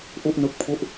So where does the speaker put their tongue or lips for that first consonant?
throat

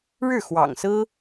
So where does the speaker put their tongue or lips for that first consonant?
retroflex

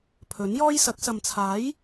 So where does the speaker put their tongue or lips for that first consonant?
lips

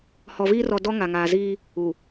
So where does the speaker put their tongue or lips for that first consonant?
throat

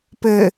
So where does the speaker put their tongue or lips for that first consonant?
lips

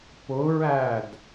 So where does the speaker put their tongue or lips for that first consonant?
lips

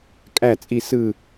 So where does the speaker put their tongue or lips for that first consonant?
velum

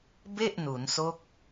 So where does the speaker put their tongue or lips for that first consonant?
lips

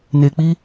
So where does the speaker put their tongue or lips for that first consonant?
tongue tip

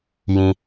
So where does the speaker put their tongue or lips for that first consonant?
palate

